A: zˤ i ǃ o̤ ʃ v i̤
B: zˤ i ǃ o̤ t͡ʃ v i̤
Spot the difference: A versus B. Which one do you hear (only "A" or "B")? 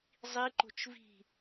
B